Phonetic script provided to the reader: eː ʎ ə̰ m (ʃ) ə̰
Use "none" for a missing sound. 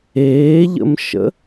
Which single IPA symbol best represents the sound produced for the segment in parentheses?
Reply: ʃ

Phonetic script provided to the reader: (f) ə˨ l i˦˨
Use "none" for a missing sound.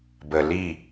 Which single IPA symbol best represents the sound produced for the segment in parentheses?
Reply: b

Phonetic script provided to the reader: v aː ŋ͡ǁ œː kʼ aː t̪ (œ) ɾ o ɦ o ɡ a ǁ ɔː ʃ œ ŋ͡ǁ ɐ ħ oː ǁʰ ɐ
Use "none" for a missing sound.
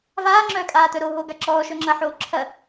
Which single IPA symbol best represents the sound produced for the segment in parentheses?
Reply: œ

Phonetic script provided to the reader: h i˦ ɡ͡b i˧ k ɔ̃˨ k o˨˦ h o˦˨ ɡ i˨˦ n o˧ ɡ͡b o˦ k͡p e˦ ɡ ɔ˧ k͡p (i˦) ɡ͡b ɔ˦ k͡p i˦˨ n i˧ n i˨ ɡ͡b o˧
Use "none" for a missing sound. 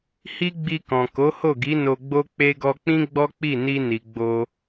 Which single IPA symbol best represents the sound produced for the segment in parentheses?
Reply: ĩ˦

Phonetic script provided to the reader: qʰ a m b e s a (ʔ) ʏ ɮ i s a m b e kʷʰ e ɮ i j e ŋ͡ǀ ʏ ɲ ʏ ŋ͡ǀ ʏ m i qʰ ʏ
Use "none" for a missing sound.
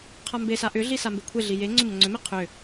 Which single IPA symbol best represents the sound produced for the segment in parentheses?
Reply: ʔ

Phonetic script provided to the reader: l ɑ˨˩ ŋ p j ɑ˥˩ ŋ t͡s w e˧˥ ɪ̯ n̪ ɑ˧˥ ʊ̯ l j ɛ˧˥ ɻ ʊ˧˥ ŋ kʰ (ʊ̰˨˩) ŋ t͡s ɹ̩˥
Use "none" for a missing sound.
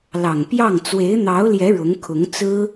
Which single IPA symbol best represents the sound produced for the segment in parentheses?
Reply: ʊ˧˥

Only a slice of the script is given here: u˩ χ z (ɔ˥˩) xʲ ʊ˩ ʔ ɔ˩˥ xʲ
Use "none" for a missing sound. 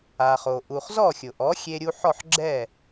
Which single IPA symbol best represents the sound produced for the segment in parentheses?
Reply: ɔ˥˩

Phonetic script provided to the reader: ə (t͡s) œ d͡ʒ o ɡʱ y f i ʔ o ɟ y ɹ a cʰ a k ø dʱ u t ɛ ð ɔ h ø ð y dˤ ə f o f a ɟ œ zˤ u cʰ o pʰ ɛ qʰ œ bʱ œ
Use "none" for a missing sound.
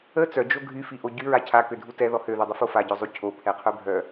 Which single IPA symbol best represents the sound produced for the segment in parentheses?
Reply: t͡s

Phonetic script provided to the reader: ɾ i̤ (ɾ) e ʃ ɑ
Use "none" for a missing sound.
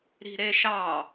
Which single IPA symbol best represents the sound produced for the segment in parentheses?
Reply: ɾ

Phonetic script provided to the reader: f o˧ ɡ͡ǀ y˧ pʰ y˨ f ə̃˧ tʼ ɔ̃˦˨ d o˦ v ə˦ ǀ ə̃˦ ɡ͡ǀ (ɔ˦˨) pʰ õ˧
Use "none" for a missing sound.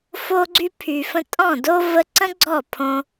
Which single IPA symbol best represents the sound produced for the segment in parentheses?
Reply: ɔ˦˨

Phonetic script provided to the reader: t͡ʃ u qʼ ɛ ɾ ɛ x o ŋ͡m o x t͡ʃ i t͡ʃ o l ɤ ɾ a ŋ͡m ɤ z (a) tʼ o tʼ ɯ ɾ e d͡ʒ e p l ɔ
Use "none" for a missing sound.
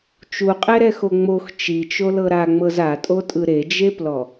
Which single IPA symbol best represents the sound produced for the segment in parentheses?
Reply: a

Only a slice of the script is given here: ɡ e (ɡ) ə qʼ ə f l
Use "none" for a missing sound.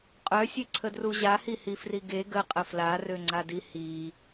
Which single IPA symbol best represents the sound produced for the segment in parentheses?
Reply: ɡ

